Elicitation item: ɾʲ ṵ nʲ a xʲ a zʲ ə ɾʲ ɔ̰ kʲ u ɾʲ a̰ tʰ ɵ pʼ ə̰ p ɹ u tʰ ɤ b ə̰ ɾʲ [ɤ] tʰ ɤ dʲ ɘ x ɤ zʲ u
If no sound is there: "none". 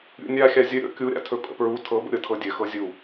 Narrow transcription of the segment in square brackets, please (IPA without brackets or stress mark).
ɤ